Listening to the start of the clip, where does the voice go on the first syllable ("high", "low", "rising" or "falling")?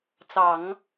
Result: low